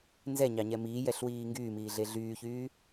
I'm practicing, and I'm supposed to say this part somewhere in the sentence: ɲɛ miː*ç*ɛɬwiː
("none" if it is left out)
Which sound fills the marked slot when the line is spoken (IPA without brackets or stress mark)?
j